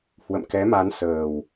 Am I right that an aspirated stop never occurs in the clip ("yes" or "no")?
yes